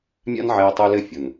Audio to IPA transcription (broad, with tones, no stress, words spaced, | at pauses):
mʲa̰˦n ʕɛː˧tˤu˧lɘ˦˨fʲʊ˨n